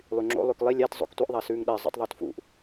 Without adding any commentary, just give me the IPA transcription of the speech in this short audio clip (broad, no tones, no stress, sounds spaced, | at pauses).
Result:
lˠ y ŋ͡ǁ o̰ lˠ ʉ k lˠ i lʲ æ t zˤ o̰ k tʷ i ʔ ðˤ æ s ʉː ŋ ɗ ɛ zˤ ṵ tˤ ðˤ o t f ṵ ʔ